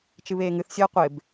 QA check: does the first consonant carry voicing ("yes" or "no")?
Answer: no